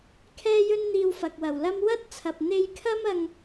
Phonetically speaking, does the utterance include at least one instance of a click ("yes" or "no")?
no